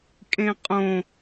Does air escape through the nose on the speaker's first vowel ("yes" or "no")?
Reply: yes